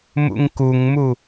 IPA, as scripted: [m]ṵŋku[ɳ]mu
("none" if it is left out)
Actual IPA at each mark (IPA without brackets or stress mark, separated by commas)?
m, ŋ